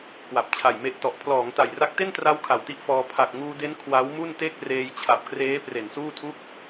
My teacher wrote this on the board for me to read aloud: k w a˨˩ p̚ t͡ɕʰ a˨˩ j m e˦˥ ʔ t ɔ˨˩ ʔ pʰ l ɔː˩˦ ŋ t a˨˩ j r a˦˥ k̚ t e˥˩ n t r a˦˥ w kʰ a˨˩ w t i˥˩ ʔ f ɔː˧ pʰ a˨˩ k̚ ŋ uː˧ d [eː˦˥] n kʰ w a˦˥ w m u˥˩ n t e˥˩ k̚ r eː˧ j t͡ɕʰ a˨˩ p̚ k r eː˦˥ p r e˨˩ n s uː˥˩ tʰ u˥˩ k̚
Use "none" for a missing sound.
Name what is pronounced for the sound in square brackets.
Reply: e˦˥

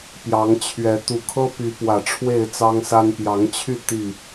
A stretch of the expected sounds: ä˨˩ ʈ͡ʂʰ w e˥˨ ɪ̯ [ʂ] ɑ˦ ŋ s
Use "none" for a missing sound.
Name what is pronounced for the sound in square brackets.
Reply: t͡s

